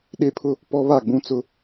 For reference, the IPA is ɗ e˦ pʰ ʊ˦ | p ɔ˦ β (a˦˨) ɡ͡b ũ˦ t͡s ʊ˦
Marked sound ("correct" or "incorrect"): correct